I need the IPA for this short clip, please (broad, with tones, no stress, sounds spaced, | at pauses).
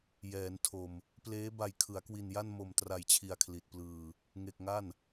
j ɛː˩˦ n tʰ o˨˩ m | p l eː˦˥ b a˧ j kʰ ɯ˩˦ a̯ k w i˧ n j a˥˩ n m o˧ m t r a˧ j t͡ɕʰ i˧ a̯ kʰ l i˨˩ t̚ p l ɯː˧ | ŋ e˨˩ k̚ ŋ a˥˩ n